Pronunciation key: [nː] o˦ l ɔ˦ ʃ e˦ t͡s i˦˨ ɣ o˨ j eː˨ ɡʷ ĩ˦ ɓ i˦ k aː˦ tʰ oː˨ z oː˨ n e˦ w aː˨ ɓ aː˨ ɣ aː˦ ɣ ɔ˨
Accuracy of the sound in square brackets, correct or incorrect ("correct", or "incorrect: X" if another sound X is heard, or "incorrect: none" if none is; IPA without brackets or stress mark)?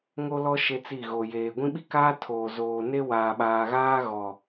incorrect: ŋ